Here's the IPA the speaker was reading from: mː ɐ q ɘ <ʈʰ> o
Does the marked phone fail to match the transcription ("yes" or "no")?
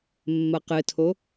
yes